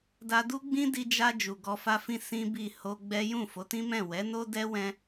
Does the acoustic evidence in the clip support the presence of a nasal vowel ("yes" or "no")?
yes